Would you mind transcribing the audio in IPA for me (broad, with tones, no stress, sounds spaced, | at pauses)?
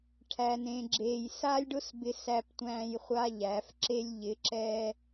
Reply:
ʈʰ æ˨ n ẽ˨ ɡ͡ǁ eː˨ j s a˦ lʲ ɖ ʊ˦ s b ɪ˧ s æ˧ p tʷ æ̃ː˧ j χʷ a˦ ʎ æ˨˦ f ǁ e˧ lʲ ʎ ɪ˨˦ ǁ ɛ˧